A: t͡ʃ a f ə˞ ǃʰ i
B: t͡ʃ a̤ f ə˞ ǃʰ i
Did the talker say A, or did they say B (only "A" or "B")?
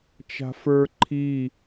B